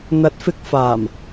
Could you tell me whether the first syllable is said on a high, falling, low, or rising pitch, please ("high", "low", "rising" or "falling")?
rising